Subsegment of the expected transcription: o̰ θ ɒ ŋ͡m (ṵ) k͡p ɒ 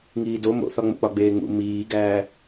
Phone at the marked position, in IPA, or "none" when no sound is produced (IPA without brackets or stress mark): o̰